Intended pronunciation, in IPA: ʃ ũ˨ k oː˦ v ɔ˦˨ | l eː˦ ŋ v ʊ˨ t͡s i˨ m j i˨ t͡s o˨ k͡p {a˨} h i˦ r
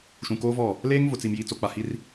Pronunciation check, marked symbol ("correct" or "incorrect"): correct